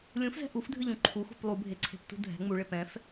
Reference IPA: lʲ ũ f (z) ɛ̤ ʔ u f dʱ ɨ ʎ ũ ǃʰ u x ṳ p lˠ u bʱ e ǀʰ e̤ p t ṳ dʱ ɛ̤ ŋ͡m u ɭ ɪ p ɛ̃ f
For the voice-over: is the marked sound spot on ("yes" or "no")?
yes